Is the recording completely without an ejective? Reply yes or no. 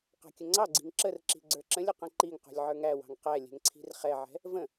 yes